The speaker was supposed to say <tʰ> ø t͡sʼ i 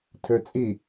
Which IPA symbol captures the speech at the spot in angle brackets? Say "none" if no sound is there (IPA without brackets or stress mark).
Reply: tʰ